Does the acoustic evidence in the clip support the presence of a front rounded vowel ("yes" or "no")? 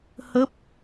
no